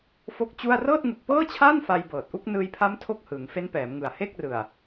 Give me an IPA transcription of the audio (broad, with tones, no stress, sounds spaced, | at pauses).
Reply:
f o˦˥ k̚ t͡ɕ u˥˩ a̯ r ɤː˥˩ t̚ ŋ u˨˩ k̚ p ɤː˥˩ t͡ɕʰ aː˥˩ n f a˧ j b ɤː˨˩ t̚ ʔ u˥˩ k̚ n ɯː˧ j pʰ a˦˥ m tʰ o˥˩ k̚ h ɯː˩˦ ŋ f e˦˥ n p ɛː˩˦ m ŋ ɯ˨˩ a̯ h e˥˩ k̚ r ɯ˨˩ a̯